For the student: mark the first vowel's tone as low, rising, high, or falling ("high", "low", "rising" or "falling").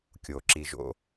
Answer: low